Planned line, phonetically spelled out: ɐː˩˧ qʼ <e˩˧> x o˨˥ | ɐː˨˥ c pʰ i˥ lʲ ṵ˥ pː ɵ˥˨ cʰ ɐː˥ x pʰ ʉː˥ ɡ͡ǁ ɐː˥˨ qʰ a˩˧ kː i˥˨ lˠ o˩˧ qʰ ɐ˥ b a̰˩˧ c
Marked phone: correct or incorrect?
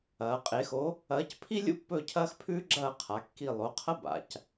correct